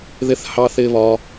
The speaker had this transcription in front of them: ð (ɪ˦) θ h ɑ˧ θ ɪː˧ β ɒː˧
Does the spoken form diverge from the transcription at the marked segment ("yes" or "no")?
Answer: no